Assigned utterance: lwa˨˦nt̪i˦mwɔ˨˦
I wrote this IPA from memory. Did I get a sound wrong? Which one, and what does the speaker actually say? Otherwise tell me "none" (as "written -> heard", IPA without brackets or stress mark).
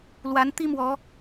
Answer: none